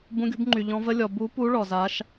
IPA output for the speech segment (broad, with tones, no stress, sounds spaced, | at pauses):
b ũ˧˥ ɡʲ ṳ˧˥ b ŋ͡ǃ y˨ ʎ ɔ̃˧˥ v ə˧˥ lʲ ɔ˨ b u˧˥ p u˧˥ ɭ ɔ˨ z a˧˥ ʃ